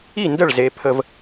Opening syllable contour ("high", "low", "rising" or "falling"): falling